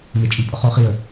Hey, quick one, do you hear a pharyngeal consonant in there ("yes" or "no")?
no